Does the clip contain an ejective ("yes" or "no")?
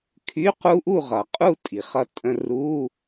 yes